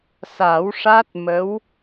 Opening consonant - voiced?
no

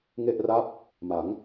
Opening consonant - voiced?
yes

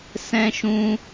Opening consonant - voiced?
no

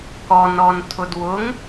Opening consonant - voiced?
no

